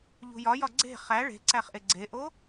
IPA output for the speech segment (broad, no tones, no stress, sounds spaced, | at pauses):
ʎ ṳ j ɒ j ɒ ɡ͡ǀ e̤ χ æ ɭ e̤ ǀ æ χ ʔ e ɡ͡ǀ e ʔ o